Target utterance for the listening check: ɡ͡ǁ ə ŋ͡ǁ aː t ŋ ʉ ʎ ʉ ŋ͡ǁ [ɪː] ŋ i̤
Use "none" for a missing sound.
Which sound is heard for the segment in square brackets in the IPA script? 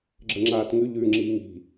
iː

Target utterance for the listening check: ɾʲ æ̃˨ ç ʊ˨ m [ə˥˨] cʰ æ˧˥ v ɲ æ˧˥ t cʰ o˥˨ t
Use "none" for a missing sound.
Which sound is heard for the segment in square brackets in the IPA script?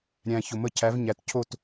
ə˥˨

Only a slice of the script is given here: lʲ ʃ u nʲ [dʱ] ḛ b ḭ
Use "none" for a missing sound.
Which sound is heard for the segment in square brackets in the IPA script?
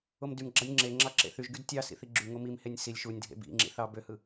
dʱ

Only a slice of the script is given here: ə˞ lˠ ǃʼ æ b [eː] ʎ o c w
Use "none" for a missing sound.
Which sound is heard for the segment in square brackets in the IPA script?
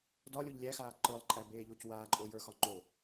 eː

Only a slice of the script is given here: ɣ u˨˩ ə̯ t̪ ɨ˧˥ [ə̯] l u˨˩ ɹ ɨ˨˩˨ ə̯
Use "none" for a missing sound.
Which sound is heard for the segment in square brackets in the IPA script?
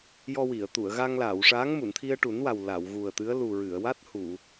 ə̯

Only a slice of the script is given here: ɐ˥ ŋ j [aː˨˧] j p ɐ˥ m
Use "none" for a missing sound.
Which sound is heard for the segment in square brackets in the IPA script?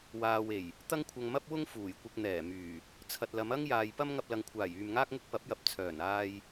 aː˨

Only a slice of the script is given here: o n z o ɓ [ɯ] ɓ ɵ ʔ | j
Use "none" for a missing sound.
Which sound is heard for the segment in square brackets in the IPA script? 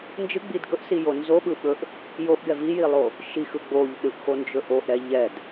ɯ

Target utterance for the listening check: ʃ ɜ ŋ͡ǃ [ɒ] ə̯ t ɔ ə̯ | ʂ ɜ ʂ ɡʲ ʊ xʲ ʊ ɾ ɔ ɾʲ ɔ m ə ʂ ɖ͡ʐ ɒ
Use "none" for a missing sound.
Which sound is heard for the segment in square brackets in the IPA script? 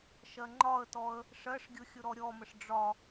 ɒ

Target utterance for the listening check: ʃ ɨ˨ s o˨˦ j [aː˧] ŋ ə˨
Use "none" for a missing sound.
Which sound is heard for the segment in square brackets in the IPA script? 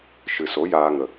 aː˧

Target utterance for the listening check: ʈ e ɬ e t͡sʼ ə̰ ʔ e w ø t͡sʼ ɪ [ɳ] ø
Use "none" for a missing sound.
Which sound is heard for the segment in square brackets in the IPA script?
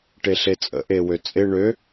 ɳ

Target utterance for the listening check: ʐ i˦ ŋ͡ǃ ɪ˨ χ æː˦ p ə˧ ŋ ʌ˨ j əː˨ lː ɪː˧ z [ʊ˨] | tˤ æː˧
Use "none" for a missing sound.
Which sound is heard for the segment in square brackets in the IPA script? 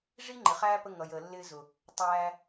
ʊ˨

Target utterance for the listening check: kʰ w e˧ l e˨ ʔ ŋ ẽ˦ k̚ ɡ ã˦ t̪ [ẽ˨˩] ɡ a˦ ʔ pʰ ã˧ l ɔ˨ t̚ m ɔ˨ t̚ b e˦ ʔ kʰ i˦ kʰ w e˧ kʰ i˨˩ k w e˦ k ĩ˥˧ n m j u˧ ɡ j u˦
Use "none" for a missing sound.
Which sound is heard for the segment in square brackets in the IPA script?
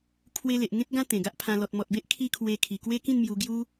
ẽ˨˩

